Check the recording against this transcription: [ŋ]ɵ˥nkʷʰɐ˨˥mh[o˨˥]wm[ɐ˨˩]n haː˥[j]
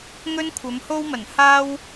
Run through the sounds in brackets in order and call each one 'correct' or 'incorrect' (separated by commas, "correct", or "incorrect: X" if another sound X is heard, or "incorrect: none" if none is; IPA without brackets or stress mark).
correct, incorrect: o˥, correct, incorrect: w